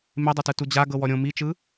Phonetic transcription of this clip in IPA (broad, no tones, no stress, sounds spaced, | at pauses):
m e dˤ ɤ t ɯ t u d͡ʑ a ɡ ɤ w ɔ ɾʲ õ m i t͡ʃ ɯ